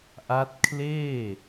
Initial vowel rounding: unrounded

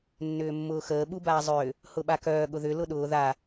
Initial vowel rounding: rounded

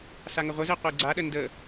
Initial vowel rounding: unrounded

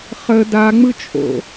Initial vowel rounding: unrounded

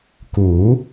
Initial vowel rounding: rounded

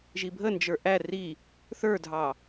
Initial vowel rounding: unrounded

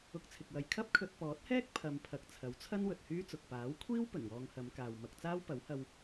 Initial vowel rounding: rounded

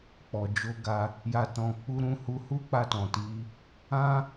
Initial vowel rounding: rounded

